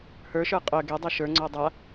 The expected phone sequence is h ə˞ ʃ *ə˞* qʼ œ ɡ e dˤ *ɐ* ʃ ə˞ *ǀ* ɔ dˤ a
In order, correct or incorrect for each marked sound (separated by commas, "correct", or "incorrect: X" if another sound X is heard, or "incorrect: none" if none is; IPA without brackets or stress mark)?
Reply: correct, incorrect: æ, incorrect: ŋ͡ǀ